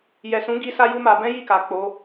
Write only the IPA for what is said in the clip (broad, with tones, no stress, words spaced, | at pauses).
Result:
jɛ˨sũ˨˦ɡi˧ sa˦ju˦ma˧ bɛ̃˦ji˦˨ka˨ k͡po˨˦